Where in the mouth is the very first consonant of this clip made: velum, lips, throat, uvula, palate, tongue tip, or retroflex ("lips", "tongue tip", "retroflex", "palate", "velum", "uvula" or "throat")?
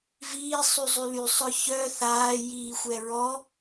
lips